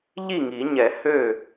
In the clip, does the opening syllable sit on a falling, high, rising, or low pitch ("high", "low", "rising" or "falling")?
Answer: falling